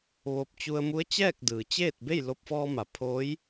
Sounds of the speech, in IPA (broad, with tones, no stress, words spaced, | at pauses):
ʋoː˧p̚ t͡ɕu˧ə̯ mu˧˥ə̯t͡ɕɛː˥˨k̚dɯː˩t͡ɕeː˥˨t̚ be˥˨jlo˧p̚fɔː˧ma˩˧ pʰoː˧˥j